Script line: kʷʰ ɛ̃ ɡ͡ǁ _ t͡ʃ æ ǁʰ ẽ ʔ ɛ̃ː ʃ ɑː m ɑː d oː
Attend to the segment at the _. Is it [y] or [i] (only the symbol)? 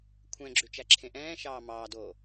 y